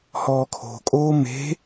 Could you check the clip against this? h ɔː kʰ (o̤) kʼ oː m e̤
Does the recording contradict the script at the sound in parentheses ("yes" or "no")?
no